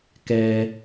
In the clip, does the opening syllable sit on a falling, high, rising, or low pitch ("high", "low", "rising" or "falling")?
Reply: high